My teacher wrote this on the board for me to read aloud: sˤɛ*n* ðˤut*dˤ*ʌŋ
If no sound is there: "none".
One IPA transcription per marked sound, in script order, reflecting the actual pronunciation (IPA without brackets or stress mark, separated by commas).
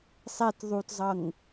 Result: t, zˤ